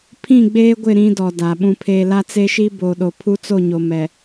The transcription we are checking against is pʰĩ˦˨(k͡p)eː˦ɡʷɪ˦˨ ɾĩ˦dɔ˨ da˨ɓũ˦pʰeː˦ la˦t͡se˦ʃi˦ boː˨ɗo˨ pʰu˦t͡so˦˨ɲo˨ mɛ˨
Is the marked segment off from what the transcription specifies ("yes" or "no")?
yes